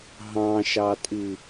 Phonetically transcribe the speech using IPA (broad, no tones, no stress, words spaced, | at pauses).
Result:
ɦɑ̃ʃɑtʼi